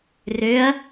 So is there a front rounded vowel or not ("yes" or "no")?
yes